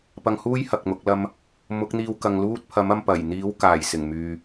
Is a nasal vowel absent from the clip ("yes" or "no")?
yes